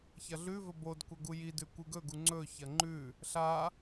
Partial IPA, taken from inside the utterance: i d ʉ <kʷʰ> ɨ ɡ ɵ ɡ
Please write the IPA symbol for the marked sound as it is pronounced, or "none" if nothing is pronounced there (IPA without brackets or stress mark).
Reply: kʷ